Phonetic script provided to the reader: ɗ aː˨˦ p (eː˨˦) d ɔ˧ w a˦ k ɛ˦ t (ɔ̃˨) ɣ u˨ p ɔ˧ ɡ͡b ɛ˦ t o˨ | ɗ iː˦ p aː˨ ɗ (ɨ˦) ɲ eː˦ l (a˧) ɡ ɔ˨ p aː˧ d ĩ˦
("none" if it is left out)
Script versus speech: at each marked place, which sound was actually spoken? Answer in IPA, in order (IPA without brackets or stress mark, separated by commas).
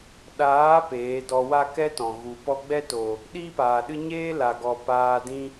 eː˨˦, ɔ̃˨, ɨ˦, a˨